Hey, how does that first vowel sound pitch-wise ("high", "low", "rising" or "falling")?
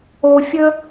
low